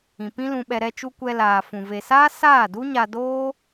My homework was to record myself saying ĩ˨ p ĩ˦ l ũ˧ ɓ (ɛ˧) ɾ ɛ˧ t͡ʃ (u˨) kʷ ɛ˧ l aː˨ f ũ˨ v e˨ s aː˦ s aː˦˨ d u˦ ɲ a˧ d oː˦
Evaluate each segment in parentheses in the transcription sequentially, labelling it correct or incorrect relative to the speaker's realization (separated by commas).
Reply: correct, incorrect